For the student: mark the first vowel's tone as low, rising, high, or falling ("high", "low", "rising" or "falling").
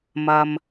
low